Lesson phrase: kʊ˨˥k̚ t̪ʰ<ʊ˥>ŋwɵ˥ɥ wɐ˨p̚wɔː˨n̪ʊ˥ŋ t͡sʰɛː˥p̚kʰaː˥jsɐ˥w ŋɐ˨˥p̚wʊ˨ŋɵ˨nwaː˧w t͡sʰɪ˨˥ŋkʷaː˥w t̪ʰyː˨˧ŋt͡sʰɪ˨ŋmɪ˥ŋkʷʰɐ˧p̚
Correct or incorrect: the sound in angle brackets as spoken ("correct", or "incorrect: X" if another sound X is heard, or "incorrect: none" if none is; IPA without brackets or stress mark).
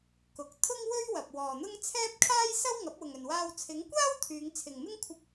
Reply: correct